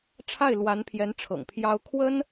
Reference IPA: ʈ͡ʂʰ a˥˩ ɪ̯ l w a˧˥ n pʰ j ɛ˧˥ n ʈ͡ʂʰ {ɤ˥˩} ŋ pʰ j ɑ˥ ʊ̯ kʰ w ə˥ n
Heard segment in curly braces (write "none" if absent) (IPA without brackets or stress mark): ɤ̰˨˩